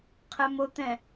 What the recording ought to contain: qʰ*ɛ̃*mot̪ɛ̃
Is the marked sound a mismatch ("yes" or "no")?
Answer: yes